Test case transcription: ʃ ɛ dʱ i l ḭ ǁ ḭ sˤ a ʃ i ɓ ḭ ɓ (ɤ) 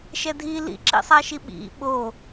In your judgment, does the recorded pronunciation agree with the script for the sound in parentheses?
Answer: no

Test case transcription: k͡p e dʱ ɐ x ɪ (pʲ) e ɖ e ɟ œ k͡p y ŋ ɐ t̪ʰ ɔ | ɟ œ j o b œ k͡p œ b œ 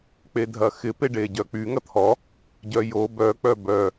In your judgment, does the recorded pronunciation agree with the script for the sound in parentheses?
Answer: no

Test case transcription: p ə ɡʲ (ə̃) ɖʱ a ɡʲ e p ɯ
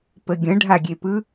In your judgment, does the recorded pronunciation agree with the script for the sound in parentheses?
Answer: yes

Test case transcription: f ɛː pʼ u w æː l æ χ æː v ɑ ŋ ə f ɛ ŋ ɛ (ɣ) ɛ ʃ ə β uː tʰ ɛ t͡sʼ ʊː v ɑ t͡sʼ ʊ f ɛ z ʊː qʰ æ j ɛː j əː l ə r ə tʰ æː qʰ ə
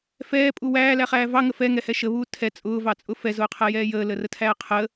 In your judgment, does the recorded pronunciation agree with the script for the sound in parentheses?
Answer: no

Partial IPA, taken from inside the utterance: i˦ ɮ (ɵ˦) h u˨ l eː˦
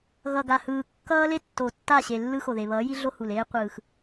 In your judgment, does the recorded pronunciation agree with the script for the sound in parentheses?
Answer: no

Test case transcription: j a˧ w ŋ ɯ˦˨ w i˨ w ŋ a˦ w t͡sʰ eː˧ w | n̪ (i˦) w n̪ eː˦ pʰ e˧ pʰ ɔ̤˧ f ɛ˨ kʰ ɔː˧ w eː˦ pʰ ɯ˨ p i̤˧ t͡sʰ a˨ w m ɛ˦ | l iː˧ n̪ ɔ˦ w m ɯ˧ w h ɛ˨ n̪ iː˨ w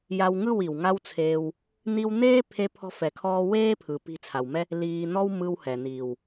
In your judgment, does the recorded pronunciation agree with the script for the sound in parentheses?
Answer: no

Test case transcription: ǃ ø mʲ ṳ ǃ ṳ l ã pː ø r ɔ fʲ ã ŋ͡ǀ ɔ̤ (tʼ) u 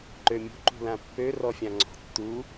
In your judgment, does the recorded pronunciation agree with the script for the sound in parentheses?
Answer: no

